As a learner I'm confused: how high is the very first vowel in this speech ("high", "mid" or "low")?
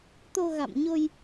mid